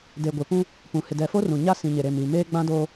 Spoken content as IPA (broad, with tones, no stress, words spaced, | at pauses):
de˨ɡʷɪ˨pũ˦ | pũ˨ hɪ˨dɛ˨fo˦rũ˨ ɲa˦sĩ˨ɲe˨ ɾe˨m i˨meː˦ ɡ͡bã˦doː˦